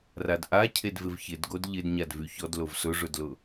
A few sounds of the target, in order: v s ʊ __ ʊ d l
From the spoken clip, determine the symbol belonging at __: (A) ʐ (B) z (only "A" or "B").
A